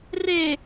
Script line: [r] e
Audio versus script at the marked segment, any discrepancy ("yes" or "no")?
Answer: no